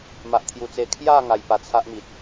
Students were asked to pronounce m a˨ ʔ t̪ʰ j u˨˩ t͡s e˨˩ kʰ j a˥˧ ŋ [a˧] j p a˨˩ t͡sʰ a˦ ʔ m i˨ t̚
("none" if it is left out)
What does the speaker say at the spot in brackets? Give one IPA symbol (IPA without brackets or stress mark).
a˨˩